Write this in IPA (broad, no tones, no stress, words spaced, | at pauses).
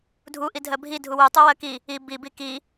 dʱuʔi dʱɜbʱi dʱuwutˤuwɜ ki | i bi biki